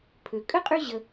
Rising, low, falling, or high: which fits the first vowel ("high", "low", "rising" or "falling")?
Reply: low